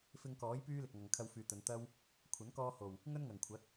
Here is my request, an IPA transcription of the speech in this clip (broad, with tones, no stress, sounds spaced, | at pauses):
f ɪ˧ ŋ k ɔː˨˥ j p yː˥ l ɪ˨ k̚ ŋ ɐ˨ ŋ kʰ ɐ˧ w f yː˨ t̪ ɵ˨˧ n t̪ ɐ˥ w | kʷʰ ɐ˨˥ n k ɔː˧ h o˨˩ w | ŋ ɵ˥ n ŋ ɐ˨˩ ŋ kʷʰ ɐ˨˥ t̚